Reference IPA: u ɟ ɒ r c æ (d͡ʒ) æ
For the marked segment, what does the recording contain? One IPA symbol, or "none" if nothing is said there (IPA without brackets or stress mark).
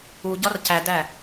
d